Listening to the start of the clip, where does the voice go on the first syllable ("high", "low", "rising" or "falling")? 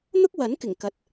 high